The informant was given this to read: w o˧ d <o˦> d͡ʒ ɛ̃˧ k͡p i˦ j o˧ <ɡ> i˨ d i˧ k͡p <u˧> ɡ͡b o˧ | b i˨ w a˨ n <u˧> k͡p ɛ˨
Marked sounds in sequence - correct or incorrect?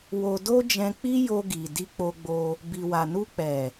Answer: correct, correct, incorrect: o˧, correct

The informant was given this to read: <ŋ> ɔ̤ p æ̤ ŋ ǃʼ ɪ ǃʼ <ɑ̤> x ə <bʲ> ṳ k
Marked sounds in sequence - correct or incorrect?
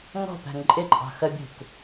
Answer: correct, correct, correct

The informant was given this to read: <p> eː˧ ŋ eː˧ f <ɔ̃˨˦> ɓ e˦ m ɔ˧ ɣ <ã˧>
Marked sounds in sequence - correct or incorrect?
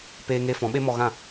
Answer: correct, correct, incorrect: ã˦˨

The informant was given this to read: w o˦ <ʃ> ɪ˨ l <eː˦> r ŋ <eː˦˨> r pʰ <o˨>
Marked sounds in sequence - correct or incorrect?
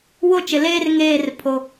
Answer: incorrect: t͡ʃ, correct, correct, incorrect: o˦

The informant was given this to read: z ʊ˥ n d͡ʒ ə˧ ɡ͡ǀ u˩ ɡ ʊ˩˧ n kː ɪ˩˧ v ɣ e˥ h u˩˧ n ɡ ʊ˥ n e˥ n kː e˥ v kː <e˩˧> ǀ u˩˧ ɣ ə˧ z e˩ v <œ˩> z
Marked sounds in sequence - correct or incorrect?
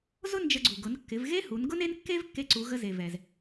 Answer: incorrect: e˧, incorrect: ɛ˩

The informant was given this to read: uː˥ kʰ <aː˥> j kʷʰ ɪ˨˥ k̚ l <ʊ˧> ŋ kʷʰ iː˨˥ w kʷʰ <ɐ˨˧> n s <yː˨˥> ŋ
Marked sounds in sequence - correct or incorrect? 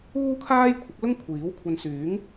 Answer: correct, incorrect: ʊ˥, incorrect: ɐ˧, correct

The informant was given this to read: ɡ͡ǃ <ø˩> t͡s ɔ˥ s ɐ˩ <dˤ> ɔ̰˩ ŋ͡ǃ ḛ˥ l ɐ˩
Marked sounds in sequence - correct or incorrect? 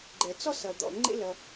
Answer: incorrect: ɛ˩, incorrect: d̪

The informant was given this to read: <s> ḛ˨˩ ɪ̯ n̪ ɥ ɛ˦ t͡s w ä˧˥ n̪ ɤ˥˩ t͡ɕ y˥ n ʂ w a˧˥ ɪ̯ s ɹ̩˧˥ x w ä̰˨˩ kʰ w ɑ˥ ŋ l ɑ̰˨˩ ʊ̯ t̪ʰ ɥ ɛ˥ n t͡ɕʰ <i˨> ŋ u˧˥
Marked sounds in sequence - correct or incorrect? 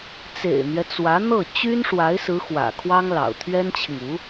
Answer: incorrect: t͡s, correct

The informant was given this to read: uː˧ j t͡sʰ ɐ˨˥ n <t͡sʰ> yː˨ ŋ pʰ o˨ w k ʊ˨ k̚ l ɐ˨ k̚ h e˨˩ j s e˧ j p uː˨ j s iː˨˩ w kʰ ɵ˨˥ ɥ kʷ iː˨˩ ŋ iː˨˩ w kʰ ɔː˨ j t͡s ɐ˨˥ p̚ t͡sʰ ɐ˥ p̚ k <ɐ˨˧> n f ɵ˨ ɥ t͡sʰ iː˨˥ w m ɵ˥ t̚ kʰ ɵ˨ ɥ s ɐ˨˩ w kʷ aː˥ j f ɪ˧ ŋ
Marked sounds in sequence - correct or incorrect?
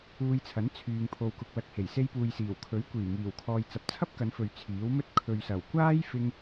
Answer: correct, correct

